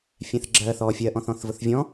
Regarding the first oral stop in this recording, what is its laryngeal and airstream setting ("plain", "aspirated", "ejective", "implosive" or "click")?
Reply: click